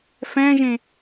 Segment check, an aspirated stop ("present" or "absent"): absent